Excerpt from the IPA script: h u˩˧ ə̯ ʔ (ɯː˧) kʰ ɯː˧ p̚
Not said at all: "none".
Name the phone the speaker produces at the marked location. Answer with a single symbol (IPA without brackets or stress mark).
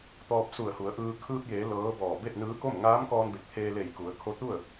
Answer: ɯː˧